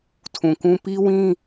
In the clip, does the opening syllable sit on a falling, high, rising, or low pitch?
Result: low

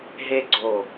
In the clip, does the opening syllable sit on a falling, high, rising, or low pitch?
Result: high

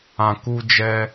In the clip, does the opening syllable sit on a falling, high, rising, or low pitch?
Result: low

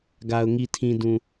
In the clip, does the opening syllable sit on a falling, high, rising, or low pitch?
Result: low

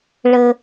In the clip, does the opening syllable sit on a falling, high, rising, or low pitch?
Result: low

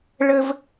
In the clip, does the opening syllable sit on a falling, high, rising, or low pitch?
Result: high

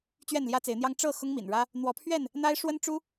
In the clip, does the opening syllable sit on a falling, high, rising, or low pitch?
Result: falling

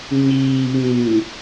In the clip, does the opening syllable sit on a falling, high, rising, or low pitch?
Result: low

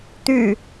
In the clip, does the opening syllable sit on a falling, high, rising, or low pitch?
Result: low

